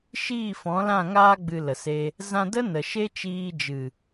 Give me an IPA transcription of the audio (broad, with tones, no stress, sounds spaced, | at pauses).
ʃ iː˦˨ f ɔ̃˨˦ l ã˦˨ ŋ aː˧ ɡ͡b ɨ˨ l ə˨ s e˧ | z ã˧ d ə˦ n ə˨ ʃ e˦ t͡ʃ iː˧ d͡ʒ ɨ˨